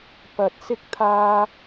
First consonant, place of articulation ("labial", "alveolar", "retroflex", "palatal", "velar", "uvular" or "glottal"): labial